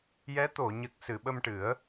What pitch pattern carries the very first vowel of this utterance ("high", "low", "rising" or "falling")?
rising